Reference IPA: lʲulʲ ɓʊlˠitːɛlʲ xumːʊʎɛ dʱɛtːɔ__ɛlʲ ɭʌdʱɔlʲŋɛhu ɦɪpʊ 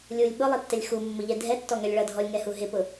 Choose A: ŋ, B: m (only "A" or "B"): A